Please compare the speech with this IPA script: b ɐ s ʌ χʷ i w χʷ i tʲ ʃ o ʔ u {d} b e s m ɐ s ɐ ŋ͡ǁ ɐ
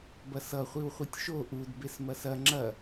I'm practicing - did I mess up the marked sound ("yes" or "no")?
no